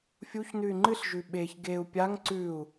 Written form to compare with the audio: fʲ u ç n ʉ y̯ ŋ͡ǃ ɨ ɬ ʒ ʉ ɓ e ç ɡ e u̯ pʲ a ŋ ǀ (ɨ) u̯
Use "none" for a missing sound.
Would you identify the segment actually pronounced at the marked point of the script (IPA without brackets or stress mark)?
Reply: ʉ